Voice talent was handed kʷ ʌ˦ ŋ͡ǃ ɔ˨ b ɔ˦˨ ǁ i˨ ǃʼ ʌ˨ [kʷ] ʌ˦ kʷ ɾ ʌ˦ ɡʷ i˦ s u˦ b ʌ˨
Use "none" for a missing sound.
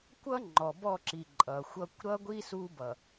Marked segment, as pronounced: xʷ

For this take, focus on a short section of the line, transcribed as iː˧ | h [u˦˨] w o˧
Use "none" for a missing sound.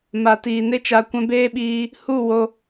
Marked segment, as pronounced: u˦˨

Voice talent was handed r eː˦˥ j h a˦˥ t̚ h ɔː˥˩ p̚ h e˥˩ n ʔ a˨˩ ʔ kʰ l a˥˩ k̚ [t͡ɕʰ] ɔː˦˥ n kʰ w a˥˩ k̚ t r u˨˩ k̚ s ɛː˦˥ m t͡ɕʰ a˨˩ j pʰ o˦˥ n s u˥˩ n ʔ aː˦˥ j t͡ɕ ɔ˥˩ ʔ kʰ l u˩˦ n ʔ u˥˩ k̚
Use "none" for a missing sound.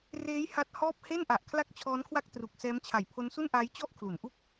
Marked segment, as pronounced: t͡ɕʰ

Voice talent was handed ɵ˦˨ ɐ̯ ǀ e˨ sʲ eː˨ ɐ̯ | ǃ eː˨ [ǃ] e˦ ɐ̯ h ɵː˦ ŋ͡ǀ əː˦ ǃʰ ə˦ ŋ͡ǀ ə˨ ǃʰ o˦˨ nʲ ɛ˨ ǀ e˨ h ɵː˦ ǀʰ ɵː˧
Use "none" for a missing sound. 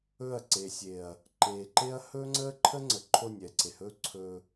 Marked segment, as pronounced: ǃ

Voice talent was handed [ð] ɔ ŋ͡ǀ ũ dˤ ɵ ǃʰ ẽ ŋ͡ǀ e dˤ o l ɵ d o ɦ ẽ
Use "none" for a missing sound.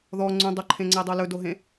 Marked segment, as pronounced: ð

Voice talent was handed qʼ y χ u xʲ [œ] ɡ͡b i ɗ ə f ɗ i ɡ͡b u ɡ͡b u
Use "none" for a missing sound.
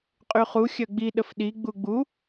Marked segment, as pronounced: œ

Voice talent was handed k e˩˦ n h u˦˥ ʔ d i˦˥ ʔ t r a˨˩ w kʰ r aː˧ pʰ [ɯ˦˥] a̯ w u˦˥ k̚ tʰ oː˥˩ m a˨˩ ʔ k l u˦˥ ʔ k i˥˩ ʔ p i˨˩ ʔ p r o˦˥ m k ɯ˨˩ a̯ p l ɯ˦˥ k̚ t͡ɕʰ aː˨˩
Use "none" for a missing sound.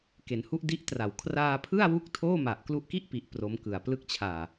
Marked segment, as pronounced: ɯ˥˩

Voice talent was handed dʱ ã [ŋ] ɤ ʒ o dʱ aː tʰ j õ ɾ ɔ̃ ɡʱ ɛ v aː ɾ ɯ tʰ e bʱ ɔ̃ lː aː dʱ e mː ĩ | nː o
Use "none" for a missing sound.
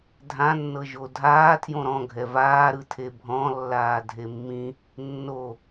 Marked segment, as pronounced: nː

